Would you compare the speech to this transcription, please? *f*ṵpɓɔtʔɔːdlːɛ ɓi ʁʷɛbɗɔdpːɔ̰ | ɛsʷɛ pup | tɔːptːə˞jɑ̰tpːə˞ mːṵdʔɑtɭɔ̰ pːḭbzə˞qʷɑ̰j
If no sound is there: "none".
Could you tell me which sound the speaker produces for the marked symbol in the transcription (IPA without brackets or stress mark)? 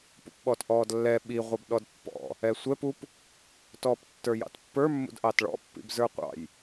p